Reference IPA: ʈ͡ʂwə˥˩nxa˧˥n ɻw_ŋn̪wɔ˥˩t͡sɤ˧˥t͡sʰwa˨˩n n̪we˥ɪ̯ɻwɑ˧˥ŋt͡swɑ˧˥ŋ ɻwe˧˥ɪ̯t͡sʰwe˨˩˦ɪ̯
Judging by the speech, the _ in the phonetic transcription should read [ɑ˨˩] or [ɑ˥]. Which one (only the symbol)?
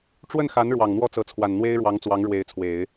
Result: ɑ˨˩